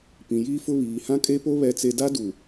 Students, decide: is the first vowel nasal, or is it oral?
nasal